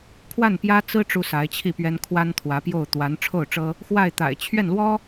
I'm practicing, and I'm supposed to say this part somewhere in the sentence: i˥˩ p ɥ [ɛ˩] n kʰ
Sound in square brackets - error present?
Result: yes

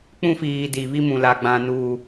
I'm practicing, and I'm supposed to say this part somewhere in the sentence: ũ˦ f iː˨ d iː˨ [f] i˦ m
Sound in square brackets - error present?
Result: yes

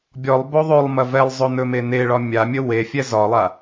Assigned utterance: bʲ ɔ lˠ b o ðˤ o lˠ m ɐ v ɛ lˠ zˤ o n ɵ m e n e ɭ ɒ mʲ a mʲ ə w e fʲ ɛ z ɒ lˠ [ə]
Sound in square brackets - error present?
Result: yes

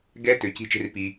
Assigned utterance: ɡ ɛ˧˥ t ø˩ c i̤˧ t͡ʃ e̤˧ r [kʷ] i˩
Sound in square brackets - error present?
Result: yes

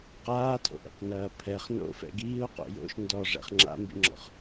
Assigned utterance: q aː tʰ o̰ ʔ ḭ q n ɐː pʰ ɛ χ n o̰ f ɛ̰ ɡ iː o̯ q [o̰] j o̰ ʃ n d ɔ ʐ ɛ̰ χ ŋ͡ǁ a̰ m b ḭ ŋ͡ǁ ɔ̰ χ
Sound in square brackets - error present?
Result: no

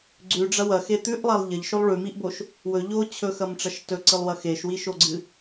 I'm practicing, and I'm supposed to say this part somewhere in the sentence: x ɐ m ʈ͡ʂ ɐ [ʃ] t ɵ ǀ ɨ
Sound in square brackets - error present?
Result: no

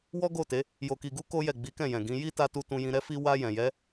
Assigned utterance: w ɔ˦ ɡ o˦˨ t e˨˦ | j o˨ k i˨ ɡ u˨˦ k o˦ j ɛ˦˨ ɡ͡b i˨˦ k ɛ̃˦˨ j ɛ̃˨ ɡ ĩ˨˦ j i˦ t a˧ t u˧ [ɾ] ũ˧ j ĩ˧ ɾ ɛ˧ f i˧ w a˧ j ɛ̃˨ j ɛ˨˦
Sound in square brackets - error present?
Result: yes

